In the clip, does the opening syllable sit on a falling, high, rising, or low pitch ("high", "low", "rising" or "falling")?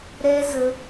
high